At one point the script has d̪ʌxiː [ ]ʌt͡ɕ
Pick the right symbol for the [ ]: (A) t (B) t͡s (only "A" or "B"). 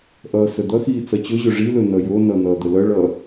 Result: B